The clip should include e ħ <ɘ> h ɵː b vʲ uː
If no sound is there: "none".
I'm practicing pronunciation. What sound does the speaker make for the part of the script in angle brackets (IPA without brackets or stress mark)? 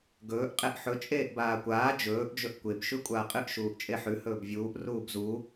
ʉ